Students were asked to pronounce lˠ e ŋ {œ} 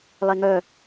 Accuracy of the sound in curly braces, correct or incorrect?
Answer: correct